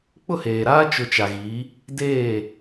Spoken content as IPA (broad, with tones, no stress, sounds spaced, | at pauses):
k͡p ʊ˦˨ h eː˨ ɾ aː˦ t͡ʃ ʊ˦ t͡ʃ a˨ ɣ i˨˦ | d eː˦˨